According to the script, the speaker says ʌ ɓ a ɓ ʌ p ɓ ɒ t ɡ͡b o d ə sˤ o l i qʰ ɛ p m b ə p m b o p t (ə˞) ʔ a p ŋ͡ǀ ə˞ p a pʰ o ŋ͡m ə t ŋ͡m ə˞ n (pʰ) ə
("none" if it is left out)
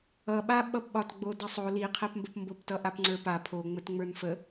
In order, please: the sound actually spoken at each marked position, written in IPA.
ʌ, f

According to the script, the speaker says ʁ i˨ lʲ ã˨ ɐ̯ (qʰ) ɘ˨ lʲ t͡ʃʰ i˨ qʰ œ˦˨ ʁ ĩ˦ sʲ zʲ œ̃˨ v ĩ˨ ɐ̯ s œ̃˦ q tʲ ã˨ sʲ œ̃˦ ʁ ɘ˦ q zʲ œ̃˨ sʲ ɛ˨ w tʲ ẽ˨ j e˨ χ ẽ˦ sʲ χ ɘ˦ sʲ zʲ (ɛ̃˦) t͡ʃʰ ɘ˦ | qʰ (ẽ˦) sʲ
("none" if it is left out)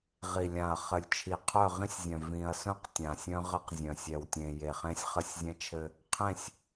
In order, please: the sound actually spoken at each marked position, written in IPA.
χ, ɛ̃˦, ẽ˦˨

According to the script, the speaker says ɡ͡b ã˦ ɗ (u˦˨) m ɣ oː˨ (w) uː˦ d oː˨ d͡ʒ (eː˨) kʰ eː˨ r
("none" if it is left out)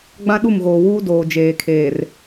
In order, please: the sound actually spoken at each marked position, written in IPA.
u˦˨, w, eː˨

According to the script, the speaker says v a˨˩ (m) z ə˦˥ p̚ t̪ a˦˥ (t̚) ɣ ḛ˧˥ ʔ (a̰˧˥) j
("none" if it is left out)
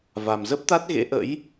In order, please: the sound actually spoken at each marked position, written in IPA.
m, t̚, ə̰˧˥

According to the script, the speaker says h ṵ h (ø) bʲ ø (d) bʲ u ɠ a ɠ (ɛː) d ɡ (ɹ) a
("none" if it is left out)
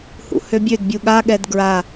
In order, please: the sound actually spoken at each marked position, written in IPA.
ø, d, ɛ, ɹ

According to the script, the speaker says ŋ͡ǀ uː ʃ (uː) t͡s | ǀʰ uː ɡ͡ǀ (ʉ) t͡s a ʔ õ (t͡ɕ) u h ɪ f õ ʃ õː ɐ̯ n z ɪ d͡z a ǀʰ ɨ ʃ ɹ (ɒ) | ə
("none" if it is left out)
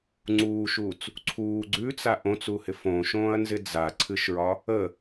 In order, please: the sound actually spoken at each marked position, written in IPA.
uː, ʉ, t͡s, ɒ

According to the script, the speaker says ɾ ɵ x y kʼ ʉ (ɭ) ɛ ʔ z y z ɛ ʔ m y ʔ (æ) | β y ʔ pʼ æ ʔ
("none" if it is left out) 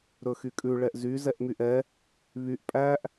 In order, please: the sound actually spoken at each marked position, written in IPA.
ɭ, ɛ

